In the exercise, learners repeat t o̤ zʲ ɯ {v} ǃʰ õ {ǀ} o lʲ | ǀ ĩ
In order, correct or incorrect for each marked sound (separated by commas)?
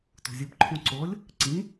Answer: incorrect, correct